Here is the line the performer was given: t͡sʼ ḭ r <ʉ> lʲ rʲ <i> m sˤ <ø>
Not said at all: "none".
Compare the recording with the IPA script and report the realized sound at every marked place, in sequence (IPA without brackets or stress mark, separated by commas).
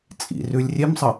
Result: ʉ, e, ə